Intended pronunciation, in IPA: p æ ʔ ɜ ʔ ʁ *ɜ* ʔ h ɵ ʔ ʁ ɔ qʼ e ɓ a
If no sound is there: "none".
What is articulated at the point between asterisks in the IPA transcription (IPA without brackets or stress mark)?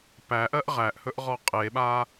æ